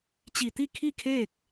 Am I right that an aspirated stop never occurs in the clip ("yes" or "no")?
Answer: no